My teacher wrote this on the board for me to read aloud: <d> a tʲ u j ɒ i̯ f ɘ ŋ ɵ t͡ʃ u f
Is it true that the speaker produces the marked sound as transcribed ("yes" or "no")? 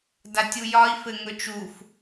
yes